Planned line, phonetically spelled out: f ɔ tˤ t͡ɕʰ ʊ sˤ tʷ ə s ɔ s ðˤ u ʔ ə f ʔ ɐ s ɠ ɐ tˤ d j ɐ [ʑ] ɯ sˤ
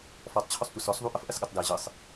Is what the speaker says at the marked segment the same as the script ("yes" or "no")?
yes